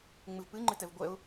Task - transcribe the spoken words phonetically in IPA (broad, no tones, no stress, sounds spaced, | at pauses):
ŋ͡m ɨ v p ɨ ŋ͡ǃ ɨ t ɛ v ɡʷ ɛ ʊ̯